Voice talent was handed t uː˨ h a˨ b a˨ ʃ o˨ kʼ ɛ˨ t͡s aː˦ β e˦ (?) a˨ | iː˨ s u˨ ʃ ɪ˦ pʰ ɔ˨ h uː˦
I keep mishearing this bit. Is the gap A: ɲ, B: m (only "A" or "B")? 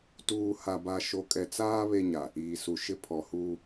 A